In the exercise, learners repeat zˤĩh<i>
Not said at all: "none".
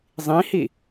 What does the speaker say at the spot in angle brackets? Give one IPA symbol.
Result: i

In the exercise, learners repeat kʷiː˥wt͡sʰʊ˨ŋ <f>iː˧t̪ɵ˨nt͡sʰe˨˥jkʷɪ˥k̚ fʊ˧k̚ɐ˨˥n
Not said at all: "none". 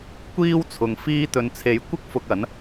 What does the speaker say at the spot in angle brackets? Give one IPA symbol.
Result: f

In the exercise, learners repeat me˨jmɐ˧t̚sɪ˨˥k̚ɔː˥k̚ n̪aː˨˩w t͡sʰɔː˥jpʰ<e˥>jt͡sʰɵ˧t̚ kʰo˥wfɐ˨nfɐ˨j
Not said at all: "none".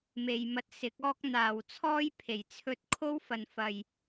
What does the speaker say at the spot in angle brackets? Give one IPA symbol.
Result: e˨˩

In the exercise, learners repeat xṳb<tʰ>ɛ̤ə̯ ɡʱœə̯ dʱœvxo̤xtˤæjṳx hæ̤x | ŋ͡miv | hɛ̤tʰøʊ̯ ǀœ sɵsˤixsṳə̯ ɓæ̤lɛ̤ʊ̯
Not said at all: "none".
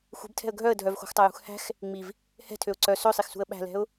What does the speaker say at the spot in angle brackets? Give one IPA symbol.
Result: tʰ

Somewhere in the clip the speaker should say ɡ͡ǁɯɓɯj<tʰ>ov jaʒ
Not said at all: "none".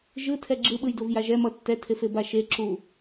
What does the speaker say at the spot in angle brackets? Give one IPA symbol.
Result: d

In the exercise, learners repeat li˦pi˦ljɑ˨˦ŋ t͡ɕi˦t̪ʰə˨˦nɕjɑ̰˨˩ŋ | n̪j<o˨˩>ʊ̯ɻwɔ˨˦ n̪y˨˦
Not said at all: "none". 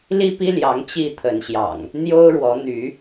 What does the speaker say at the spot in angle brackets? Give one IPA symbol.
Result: o˦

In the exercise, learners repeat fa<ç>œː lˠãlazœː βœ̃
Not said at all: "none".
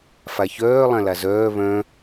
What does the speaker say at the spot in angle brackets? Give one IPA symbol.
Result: ç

